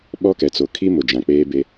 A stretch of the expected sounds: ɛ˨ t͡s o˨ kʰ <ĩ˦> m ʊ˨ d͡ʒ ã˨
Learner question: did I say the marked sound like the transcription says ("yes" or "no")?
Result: no